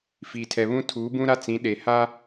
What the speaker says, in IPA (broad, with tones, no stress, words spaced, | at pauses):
fiː˨tʰɛ˨βũ˦ tʰuː˨˦bũ˦ɾa˦t͡sĩ˨˦ ɗe˨ ha˦